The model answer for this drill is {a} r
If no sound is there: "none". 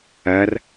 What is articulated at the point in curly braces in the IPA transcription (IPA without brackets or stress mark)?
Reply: ɐ